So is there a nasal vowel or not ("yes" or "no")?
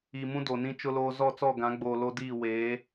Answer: yes